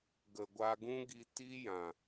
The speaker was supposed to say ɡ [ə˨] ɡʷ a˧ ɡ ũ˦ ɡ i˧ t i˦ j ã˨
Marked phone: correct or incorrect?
correct